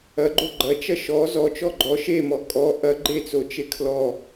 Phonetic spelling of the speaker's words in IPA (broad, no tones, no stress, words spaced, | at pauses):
ɐɡ͡ǃo ɡ͡ǃɐt͡ʃɐ ʃɔ zɔt͡ʃɔ ɡ͡ǃɔ ʃemɔ kʼɔ ʔɐ ɡ͡ǃet͡sot͡ʃe kʰlɔ